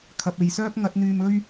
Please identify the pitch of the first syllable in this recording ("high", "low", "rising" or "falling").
low